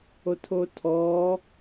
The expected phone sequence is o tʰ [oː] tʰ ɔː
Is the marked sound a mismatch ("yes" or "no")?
yes